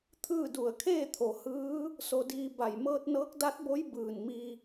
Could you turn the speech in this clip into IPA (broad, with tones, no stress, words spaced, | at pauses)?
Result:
t̪ʰɯː˥˨du˧˩ə̯ kʰeː˥˨t̪ʰo˩hɯː˧˥ | so˧diː˧ba˧˩j mɤː˧t̚nɤː˧˥k̚da˧˥t̚bo˧˥j bɯː˧˩nmi˧